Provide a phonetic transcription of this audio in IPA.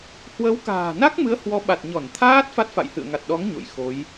h w ə˨˦ w k a̤ː˨˩ n a˦˥ k̚ m ɨ˨˦ ə̯ h w ɔ˨˦ ɓ a˨˩ t̚ ɲ ɔ˧˩ n t̪ʰ aː˦˥ t̚ f a˦˥ t̚ f a̰˧˨ j h ɨ̰˧˨ ə̯ ŋ a˨˩ t̚ ɗ ɔ˨˦ ŋ ɲ o̰˧˨ j x o˨˦ j

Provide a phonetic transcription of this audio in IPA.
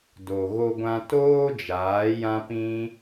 d o˨ ɣ o˧ ɡʷ ã˧ t oː˦ d͡ʒ aː˨˦ j ã˦ p ĩ˦

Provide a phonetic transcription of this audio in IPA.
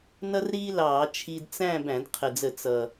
n ʌ˥ r ɾ iː˥ l ɑː˧˩˧ t͡ʃʰ i˧ d t͡s æ̃˥˧ b æ̃˧˩˧ d qʰ ə˨˩ d͡z ə˧˩˧ t͡s ʌ˨˩

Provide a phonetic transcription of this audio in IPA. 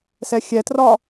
s ɛ xʲ ɛ t r ɒ

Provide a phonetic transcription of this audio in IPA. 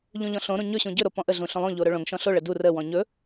ʎ ũ ʎ ɔ̃ ɬ õ ɾ ũ ɲ ɵ ɕ ũ ɟ ɵ ɾ o p ɔ̃ ʔ ə ɮ ũ ɬ õ lˠ õ ʎ o ɾ ɵ ɭ õ ŋ ʃ ɔ̃ ɬ o ɭ ə d u r ə w ɔ̃ ɲ ɵ

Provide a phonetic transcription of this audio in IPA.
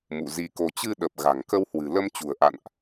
m ṵ˧˨ z i˧ k o˧ t͡ɕ ɨ˧ ɗ ə˨˩ p̚ ɣ a̤˨˩ ŋ k ə˧ w h w ɨ̤˨˩ l ə˧ m t͡ɕ ṳ˨˩ ə̯ ʔ a̰˧˨ n ʔ

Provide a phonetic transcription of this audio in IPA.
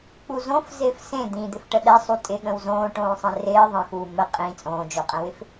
k͡p u z õ f z ɪː f s ẽ d̪ ĩ d̪ ɪ f ʈ ə ɗ ɛ sˤ u tʼ ɪ ɠ ə̃ w z õː ʈ õː sˤ ẽ r ɪː ðˤ ə̃ x uː m ə qʼ ĩ t͡sʼ õː d͡ʒ o qʼ ɛ̃ w ɪ f

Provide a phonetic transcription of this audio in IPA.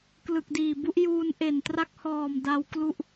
k l ɯ˨˩ k̚ d iː˨˩ b u˦˥ ʔ j uː˧ n ʔ e˨˩ n t r a˦˥ k̚ h ɔː˨˩ m d a˦˥ w k l u˥˩ ʔ

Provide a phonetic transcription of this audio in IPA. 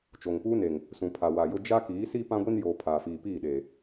t͡ʃ o˨ ŋ p uː˦ n e˨ ŋ | s ũ˨ pʰ a˨ w a˨ j ʊ˦ d͡ʒ a˦ k iː˨˦ s i˦ p ã˦ ɡʷ i˦ n j oː˨ pʰ aː˨ f iː˨ p iː˦˨ ɗ eː˨

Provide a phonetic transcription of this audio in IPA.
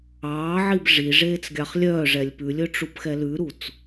ɑː ʕ i b ʐ i ʐ eː t͡s ɡʲ ɑ χ lʲ œː ʐ ɛ lʲ p ʉ lʲ ɵ ʈ͡ʂ u p x ɛ l ʉ ɾ u t͡s

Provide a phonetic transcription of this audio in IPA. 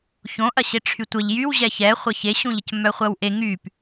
ç õ ʔ ɐ ɕ e ʈ͡ʂʰ y tʷ ə ʎ j y w ʑ ɛ ç ɛ χʷ ɐ ç e ɕ ũ ʎ ə c m œ χʷ ɐ w ʔ e ŋ y p

